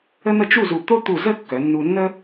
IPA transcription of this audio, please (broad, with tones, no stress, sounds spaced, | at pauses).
ə˥ n̪ ə˥˧ t͡ʃ u˥˧ z u˧˩ t̪ o˥ t̪ u˧˩ z ə˥˧ kː œ˩˧ nː u˧ nː ə˥